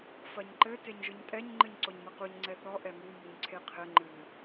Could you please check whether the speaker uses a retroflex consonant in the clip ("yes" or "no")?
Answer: no